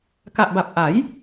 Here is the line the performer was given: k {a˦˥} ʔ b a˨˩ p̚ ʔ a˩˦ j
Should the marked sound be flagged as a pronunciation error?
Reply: yes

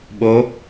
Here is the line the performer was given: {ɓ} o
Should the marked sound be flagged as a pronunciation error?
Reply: no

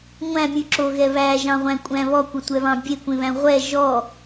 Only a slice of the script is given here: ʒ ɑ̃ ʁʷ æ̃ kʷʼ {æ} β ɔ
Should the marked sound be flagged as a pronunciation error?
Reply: yes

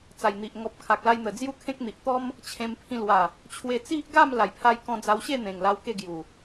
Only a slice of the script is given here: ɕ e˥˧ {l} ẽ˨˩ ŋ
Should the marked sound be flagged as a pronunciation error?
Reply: yes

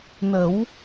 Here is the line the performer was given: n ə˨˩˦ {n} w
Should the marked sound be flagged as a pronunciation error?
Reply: yes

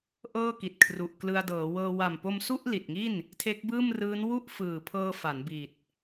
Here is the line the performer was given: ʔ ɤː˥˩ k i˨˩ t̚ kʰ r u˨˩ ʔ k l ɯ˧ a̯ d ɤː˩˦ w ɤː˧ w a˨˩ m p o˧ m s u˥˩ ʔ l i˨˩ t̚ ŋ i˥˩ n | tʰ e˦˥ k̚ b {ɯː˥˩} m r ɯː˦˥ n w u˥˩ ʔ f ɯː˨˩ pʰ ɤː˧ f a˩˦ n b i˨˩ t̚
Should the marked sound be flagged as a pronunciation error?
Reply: no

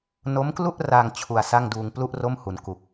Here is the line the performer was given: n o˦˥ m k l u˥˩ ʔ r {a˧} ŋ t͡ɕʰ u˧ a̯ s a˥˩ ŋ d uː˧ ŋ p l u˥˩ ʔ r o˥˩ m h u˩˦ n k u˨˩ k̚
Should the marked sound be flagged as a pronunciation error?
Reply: no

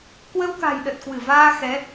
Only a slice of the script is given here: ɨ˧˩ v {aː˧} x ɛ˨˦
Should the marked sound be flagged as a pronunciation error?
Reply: no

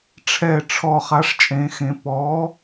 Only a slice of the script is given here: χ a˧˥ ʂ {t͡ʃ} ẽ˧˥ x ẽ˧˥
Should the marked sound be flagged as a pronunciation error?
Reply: yes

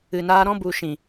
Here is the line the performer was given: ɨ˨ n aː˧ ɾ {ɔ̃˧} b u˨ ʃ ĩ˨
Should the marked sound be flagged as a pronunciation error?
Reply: no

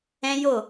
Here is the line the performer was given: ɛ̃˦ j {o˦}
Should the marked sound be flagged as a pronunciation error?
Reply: yes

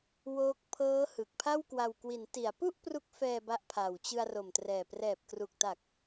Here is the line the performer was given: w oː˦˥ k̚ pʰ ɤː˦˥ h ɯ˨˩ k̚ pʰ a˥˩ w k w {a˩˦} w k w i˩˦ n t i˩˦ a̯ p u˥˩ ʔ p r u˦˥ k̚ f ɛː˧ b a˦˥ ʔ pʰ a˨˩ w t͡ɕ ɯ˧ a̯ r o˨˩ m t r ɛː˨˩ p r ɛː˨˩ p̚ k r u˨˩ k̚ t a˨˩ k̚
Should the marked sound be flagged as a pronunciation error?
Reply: yes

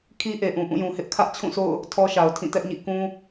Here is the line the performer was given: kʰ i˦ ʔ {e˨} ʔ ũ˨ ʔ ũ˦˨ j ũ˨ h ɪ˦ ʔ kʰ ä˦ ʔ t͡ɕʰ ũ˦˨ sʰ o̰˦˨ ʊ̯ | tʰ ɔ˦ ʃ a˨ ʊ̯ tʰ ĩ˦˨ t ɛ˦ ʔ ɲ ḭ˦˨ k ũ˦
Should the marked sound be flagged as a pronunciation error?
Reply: no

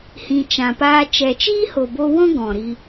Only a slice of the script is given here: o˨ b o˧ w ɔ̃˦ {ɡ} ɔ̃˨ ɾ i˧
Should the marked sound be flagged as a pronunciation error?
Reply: no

